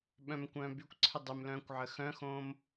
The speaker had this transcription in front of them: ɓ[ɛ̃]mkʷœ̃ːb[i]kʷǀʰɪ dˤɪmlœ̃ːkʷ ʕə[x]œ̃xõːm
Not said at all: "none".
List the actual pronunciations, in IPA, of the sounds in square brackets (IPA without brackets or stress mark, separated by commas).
œ̃, y, x